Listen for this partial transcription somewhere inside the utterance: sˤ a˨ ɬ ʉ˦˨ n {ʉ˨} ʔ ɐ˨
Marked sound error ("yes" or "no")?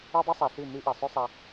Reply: yes